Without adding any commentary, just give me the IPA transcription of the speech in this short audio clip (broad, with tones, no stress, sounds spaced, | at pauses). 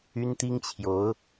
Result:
y˥ n t̪ i˥ ŋ t͡ɕʰ j o˧˥ ʊ̯